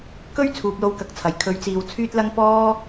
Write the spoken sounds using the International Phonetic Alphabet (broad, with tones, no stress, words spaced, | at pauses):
kɵ˥ɥ t͡sʰuː˨p̚lo˧wkɐ˨˥k̚t͡sʰɐ˨˩j kʰɵ˨˥ɥt͡siː˨wt͡sʰyː˥t̚lɐ˥ŋ pɔː˥